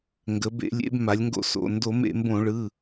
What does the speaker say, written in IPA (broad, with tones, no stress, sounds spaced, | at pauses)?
ŋ ɡ ə˩˧ b ḛ˧˩˧ lʲ ḛ˩˧ b m a˩˧ lʲ ŋ ɡ o̰˧˩˧ s o̰˩˧˩ n d o˧˩˧ m ḛ˧˩˧ m b õ˧˩˧ ɭ ɯ˩˧˩